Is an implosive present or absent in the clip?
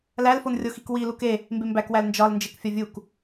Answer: absent